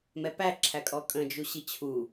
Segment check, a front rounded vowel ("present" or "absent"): absent